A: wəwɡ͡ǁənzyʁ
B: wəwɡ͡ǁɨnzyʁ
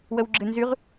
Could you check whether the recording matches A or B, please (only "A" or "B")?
B